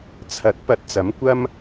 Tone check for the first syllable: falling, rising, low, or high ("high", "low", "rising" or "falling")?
rising